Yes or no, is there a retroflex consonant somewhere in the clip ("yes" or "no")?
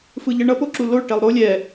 yes